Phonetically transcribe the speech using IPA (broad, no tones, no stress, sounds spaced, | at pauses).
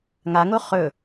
ŋ a ŋ o χ ɵ